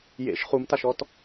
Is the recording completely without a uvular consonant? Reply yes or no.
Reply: no